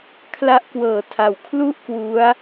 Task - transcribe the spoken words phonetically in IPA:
kʰ l a˦˥ ʔ k w ɤː˩˦ tʰ a˩˦ w kʰ l u˥˩ ʔ k w u˦˥ a̯

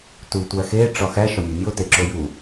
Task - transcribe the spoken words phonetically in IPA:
t u tʷ æ x e ʈ͡ʂ ɒ x æ ʃ ɒ mʲ o mʲ o t e ǁ o j u

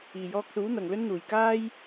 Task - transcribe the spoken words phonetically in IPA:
iː˨ j ɔː˧ k̚ s uː˨˥ n̪ ɐ˨ ŋ l ɵ˥ n n̪ uː˨ j k aː˥ j

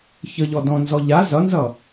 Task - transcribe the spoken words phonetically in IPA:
ç ə ʎ ɔ d ɔ̃ n z ɔ ʎ a z ʌ n z ʌ

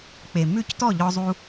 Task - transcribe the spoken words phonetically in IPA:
k͡p e˨ m ʉ˦˨ c t ɔ˦˨ ʎ ɔ˧ zˤ u˧

